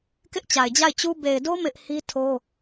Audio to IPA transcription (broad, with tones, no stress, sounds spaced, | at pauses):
k ɪ˦ ʔ t͡ɕ a˨ ɪ̯ d͡ʑ a˦˨ ɪ̯ t͡ɕ u˦ b e˨ ɪ̯ d o˦ m ɪ˦ ʔ h i˦ tʰ o˦